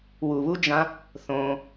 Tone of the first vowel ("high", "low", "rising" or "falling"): low